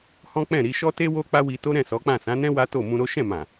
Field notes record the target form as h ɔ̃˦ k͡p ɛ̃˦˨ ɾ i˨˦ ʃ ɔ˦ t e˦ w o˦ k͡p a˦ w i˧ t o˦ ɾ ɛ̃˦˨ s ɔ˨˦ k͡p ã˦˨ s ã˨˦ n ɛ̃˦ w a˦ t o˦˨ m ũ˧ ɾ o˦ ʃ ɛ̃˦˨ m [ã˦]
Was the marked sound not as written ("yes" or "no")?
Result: yes